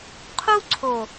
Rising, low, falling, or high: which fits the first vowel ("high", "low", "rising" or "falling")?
high